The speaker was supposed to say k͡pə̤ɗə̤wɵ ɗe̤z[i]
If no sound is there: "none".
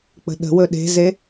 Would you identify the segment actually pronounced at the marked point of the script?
e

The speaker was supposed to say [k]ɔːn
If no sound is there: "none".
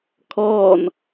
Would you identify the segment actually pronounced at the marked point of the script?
kʰ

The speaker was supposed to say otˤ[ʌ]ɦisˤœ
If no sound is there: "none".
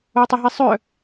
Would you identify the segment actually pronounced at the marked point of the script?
ə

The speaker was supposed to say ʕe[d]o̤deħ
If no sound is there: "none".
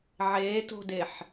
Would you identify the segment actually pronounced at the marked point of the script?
t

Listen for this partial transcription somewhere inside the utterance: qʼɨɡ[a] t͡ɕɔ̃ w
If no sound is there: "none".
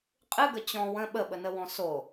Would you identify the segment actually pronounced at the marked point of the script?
ə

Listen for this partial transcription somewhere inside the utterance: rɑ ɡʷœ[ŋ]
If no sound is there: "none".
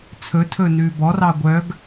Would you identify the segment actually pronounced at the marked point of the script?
ɡ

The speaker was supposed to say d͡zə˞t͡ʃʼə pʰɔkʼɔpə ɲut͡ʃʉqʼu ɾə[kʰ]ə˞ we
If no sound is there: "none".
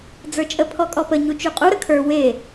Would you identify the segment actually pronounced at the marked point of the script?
kʰ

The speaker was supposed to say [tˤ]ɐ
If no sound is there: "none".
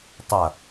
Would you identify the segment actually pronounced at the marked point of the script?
tˤ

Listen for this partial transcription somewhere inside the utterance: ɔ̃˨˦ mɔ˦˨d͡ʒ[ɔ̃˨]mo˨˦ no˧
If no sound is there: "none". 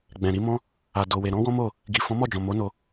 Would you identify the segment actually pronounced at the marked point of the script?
ɔ̃˨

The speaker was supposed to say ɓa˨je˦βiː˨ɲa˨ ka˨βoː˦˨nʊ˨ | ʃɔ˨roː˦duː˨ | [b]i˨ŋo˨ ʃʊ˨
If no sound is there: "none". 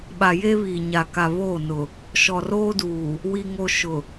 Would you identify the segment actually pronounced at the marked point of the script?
w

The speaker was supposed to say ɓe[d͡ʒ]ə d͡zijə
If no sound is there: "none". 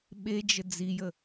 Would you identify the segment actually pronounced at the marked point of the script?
d͡ʒ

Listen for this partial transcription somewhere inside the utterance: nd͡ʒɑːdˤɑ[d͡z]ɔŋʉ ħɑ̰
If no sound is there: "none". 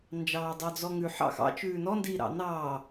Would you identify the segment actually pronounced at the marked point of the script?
d͡z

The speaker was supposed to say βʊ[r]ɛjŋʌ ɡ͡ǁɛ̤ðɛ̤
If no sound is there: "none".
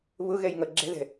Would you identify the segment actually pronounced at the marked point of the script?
ɣ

